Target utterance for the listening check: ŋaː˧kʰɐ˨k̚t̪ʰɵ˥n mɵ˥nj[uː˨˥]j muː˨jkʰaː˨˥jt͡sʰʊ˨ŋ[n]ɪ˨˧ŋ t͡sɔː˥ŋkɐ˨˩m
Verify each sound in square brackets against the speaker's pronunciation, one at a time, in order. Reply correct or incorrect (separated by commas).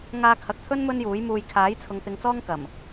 correct, incorrect